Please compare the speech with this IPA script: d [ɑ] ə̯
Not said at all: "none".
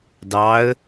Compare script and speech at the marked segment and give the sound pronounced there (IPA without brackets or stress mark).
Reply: ɑ